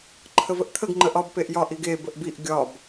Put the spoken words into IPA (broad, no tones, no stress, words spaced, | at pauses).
ǃʰəvəʔt̪ʰəɡ ŋ͡ǃəʔɒb peʔjɒʔ iɡe bəʔbiʔ ɡʲɒb